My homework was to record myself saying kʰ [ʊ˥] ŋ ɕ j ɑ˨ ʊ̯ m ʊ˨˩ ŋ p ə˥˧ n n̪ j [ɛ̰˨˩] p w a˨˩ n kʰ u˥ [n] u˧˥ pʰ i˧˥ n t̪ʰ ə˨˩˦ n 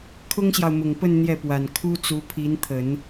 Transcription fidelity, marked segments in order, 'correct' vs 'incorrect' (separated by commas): correct, incorrect, incorrect